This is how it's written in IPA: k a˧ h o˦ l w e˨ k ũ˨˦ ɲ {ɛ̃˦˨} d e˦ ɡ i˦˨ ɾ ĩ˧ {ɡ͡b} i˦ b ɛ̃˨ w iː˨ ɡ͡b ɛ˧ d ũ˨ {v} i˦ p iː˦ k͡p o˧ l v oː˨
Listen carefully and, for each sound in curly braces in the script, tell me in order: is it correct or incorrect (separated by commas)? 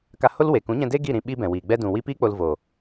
incorrect, incorrect, incorrect